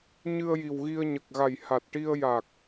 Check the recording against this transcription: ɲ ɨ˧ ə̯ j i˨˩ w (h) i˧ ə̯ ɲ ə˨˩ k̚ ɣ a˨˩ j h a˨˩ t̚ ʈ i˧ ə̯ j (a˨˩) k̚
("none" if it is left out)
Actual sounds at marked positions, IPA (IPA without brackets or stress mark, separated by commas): ɣ, a˨˩